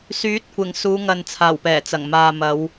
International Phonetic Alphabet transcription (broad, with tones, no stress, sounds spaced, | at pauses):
s yː˨˥ t̚ kʷ ɪ˨˩ ŋ s uː˨˧ ŋ ɐ˨ n t͡sʰ aː˨˩ w p ɛː˨˩ t͡s ɐ˨˩ ŋ m aː˨ m ɐ˨˧ w